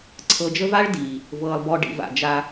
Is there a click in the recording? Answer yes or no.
yes